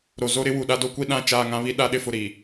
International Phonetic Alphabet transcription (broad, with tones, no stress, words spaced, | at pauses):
ɾo˨zo˦ɾɪ˦ wu˨ɗa˦do˦kʷi˦ ɗã˦˨t͡ʃaː˦˨ ŋã˦βi˦ ɗa˦ɗɪ˦fʊ˨ ɾi˨